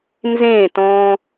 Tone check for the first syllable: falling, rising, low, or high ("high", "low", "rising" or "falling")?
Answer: falling